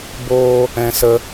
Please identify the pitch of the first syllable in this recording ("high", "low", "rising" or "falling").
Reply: high